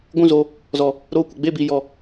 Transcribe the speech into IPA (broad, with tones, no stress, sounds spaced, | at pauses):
ɡʷ ũ˦˨ z o˧ | z ɔ˨ | ɾ oː˧ kʷ ə˨ ɡ͡b e˦˨ b i˨ j ɔ˨